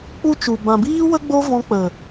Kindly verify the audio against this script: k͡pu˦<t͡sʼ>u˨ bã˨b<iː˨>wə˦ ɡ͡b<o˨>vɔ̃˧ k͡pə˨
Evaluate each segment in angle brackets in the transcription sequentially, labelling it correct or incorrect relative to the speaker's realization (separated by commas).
incorrect, incorrect, incorrect